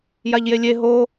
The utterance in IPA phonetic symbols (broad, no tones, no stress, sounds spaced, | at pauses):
j a ʎ j e lʲ e ɦ o